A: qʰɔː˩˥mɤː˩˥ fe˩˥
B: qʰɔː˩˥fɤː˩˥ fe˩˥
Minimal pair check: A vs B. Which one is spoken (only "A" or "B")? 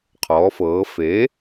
B